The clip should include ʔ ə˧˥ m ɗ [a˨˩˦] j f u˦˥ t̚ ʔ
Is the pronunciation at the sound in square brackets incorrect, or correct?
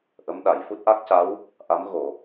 incorrect